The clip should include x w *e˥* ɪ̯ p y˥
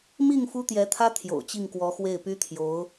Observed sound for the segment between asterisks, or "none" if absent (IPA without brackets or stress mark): e˥˩